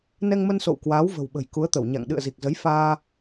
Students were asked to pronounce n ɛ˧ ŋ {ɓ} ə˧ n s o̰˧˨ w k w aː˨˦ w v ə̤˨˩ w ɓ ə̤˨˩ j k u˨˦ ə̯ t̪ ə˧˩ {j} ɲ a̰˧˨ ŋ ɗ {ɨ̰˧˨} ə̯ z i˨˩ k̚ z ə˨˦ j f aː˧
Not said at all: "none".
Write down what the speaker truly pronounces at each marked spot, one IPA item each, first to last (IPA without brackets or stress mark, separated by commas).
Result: m, w, ɨ̰˧˨